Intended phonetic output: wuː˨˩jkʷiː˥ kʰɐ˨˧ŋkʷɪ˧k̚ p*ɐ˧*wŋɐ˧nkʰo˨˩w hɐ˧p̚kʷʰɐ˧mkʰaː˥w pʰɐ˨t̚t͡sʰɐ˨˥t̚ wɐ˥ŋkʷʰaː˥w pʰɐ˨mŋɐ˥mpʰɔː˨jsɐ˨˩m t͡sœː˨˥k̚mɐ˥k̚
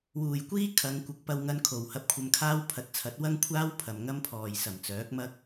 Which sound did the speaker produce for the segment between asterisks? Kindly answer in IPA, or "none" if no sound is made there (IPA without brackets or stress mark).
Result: ɐ˧